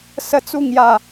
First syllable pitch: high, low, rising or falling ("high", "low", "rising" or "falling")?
high